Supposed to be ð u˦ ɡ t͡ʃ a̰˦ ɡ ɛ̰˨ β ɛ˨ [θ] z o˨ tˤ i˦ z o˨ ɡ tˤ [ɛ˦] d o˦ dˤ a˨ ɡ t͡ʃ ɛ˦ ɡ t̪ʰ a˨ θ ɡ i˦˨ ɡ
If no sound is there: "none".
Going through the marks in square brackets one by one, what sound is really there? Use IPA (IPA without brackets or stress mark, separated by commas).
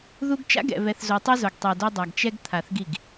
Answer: θ, ɛ˨